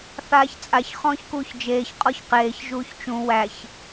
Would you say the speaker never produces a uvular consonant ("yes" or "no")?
no